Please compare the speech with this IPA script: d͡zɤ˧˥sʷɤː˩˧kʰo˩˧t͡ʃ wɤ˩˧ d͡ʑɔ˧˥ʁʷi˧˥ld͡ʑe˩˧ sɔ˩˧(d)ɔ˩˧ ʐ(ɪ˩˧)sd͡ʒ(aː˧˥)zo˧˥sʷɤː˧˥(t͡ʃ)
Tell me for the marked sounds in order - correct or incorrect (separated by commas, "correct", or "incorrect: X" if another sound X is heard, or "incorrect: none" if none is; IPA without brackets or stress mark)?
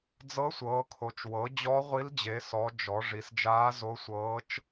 incorrect: d͡ʒ, incorrect: i˩˧, correct, correct